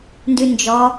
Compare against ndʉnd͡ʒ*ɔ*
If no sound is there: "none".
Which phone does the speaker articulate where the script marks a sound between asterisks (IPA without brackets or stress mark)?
ɔ